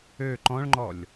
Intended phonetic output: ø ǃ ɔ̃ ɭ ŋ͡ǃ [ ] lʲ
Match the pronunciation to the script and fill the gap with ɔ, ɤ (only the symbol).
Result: ɔ